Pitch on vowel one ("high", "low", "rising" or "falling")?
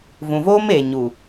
low